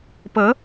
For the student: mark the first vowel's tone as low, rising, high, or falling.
rising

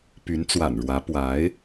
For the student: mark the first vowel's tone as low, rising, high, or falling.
rising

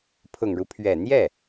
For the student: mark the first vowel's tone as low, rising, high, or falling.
low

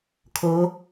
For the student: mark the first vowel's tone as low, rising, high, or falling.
rising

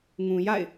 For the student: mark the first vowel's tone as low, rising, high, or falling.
low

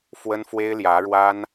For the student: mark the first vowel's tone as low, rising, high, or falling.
high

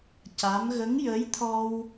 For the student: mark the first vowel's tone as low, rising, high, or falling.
rising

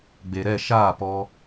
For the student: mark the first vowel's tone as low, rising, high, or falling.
low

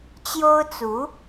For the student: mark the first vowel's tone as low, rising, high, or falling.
high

